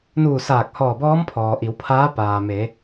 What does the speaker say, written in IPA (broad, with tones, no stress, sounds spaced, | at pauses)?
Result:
n uː˧˩ s aː˧˩ k̚ h ɔː˧˩ b ɔː˧˥ m pʰ ɔː˩ ʔ i˩˧ w pʰ aː˧˥ p aː˩ m e˩˧